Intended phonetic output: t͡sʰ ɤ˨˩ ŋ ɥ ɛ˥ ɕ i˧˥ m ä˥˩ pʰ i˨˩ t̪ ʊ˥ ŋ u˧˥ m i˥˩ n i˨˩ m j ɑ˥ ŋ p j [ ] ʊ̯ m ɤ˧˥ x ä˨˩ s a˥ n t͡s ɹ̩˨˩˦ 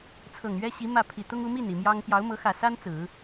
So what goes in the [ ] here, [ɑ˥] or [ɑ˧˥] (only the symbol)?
ɑ˧˥